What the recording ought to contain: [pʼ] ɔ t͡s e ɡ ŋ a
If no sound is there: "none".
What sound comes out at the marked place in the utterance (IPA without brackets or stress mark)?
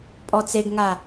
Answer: pʼ